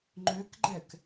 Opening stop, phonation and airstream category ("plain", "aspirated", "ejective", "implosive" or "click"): click